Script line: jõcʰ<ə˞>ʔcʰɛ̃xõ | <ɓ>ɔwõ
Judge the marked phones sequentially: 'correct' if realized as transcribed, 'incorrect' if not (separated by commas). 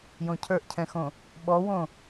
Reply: correct, correct